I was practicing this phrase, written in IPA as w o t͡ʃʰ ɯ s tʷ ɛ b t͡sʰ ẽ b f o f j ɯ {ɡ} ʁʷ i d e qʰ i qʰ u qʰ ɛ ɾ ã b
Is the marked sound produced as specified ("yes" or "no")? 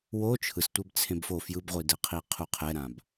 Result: no